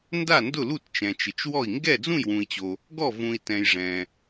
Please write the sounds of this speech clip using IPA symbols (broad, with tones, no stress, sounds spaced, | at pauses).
n d a˥˩ n d ʊ˥˩ l u˥˩ t t͡ʃ ɛ̃˨ t͡ʃ ɪ˨ t͡ʃ w ɔ˥˩ i̯ ŋ ɡ ɛ˥˩ d͡z ũ˥˩ j w ũ˨ i̯ t͡ɕ o˨ | ɡ ɔ˥˩ v ũ˨ i̯ t ɛ̃˨ j ʐ ɛ̃˨